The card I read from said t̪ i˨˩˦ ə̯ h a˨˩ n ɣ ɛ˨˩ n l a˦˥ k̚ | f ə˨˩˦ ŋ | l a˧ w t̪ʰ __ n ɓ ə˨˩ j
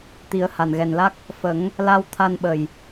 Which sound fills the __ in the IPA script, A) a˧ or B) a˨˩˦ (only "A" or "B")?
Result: A